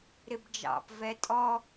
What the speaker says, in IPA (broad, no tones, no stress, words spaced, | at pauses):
ɾɪbd͡ʒɑ̰p vɛtʼɔ